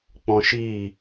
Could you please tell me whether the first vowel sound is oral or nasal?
nasal